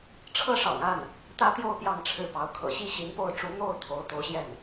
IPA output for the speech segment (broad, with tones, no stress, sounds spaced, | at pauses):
ʈ͡ʂʰ ɤ˥˩ ʂ ɑ̰˨˩ ŋ a˥˩ n | t̪ ä˥ t̪ j o˥˧ ʊ̯ p j ɑ˥˧ ŋ ʈ͡ʂʰ ɻ̩˥˩ p ɑ˧˥ ʊ̯ kʰ ɤ̰˨˩ ɕ i˥˩ ɕ i˧˥ n p o˥˩ ʊ̯ ʈ͡ʂ u˧˥ n̪ o˥˩ ʊ̯ t̪ʰ o˧˥ ʊ̯ t̪ o˧˥ ʊ̯ ɕ j ɛ˥˩ n